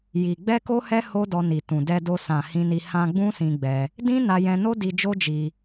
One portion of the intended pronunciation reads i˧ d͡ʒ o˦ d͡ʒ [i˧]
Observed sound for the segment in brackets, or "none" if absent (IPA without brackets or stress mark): i˧